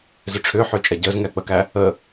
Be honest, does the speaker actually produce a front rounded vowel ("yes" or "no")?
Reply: yes